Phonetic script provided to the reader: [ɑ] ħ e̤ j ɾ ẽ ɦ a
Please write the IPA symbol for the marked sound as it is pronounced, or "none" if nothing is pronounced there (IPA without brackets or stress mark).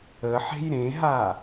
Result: ə